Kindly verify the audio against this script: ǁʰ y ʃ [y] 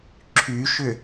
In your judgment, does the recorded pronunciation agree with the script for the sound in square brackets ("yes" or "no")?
no